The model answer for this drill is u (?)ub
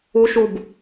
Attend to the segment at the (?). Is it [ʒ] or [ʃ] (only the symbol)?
ʃ